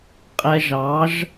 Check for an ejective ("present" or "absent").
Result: present